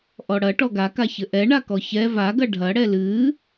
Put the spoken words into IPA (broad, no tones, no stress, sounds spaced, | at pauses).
ʔ ɔ ɽ ɐ ʈ ɔ ɡ a k a ç ɘ ʔ ɛ ɳ a k ɔ ç ɛ v a ɡ ɐ ɖʱ ɐ ɽ ɛ l ɨː